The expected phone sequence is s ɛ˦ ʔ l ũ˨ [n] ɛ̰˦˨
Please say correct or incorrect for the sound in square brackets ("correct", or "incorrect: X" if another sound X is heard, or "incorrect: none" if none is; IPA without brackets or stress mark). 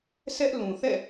incorrect: θ